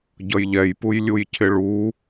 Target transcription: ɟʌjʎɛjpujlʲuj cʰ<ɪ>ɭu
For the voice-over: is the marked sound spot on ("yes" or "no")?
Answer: yes